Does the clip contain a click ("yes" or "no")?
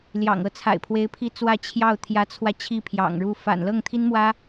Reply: no